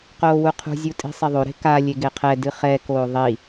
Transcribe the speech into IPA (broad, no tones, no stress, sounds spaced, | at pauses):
q oː w u qʰ ṳ zʲ u tʼ i̤ sˤ e ðˤ o ɾ e̤ k a lʲ e ɡ e qʰ ɛ d ɨ χ ɛ k oː ðˤ i